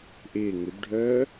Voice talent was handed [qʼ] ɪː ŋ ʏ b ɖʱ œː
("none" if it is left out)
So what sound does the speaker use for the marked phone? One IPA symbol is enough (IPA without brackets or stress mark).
ʔ